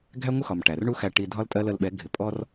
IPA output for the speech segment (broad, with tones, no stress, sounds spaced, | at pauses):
ɡʱ æ˦ ŋʷ ə˦ x ɒ˨ m ʈ æ˨ r ɳ u˦ x æ˧ ʈ i˧ dʱ ɒ˦ l tʼ ɜ˦ l ə˧ l ɓ ɛ˨˦ ɡʱ ɪ˨ pʼ ɔ˧ r